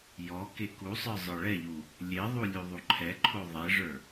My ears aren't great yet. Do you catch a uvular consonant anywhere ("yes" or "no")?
no